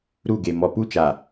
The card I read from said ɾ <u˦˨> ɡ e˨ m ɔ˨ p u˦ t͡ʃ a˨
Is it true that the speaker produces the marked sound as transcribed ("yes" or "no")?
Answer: yes